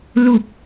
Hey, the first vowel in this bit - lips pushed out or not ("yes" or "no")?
yes